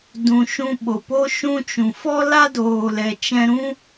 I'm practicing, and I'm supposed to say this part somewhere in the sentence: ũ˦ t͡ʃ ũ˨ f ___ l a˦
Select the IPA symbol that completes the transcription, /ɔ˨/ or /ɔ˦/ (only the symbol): ɔ˦